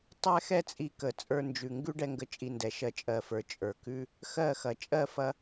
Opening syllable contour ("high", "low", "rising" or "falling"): high